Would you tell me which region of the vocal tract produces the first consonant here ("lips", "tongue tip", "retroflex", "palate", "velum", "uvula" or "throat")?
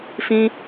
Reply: lips